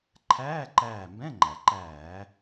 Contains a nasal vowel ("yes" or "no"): yes